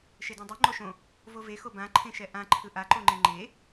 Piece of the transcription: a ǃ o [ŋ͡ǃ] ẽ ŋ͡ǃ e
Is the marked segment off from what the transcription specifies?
no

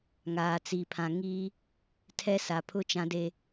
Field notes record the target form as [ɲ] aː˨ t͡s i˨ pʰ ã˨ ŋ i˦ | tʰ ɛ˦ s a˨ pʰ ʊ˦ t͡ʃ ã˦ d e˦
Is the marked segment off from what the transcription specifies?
yes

